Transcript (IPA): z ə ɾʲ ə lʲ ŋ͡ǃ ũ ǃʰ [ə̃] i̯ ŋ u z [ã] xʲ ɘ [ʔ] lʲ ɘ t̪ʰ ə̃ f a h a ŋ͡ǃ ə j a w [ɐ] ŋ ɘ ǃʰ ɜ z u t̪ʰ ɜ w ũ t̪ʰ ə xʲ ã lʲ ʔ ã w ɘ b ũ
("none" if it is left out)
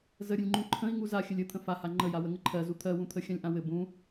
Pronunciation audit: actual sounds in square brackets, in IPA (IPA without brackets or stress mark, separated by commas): ə̃, a, none, ə